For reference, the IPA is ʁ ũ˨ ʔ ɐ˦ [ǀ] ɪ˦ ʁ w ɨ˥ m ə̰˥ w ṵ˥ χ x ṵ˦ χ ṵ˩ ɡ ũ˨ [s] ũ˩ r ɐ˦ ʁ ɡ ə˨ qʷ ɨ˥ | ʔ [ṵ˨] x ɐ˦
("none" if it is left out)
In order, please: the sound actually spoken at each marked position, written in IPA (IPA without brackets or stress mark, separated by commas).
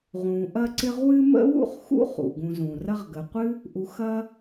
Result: ǀ, z, u˨